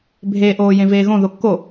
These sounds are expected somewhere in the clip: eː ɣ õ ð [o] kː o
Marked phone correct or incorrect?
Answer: correct